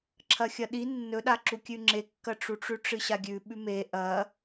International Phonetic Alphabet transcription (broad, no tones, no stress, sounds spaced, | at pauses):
ǁʰ ɐ xʲ ɐ ɗ i nː ɵ ɗ a ǁ u kʲ ʉ ŋ͡ǁ e kː ɐ ʈ͡ʂ u ʈ͡ʂ ʉ ʈ͡ʂ ɨ ɕ a ɡʲ ʉ ɓ ʉ m e ʔ ɐ